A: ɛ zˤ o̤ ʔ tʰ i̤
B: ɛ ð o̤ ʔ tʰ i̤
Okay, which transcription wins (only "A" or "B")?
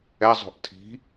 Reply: A